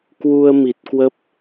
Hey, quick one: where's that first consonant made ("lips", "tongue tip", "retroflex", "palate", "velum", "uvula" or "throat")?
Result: velum